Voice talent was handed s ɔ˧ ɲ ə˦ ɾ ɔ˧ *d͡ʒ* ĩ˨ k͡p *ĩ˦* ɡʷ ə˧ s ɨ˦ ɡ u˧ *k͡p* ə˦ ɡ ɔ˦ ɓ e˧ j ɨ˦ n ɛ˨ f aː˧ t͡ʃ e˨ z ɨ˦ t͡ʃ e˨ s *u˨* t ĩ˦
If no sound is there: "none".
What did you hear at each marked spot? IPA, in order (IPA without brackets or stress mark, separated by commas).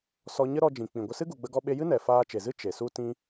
d͡ʒ, ĩ˨, ɡ͡b, u˦